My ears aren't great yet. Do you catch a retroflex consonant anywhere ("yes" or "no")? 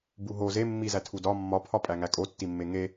no